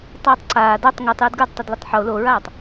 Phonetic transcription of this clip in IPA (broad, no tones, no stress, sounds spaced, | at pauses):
tˤ ɜː tˤ ǀ aː d a tˤ ŋ u tˤ j ɘ d ɡ ə˞ d tˤ ɘ d l ə tˤ ħ o l o ɹ aː tˤ